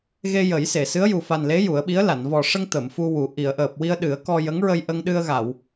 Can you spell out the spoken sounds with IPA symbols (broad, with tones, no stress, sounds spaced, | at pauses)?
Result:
ɣ e˧ j ə˨˩˦ j s e˨˩˨ s ɨ˧˥ ə̯ j u˨˩ f a˨˩ n l e˧˥ j u˨˩˦ ə̯ ɓ i˧˥ ə̯ l a˨˩˨ n v ɔ˨˩ ʂ ə˧ ŋ t̪ ə˨˩˨ m f u˧ w u˨˩˦ ʔ i˨˩˨ ə̯ ʔ əː˨˩ p̚ w i˧ ə̯ ɗ ɨ˨˩˦ ə̯ k ɔ˧ j ə˧˥ ŋ ɹ ə˧ j ʔ ə˧ ŋ ɗ ɨ˧ ə̯ ɣ a˨˩˨ w